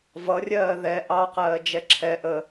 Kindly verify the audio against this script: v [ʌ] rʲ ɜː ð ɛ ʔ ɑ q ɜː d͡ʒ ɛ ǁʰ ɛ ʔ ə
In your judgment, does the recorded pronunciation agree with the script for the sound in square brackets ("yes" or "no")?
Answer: yes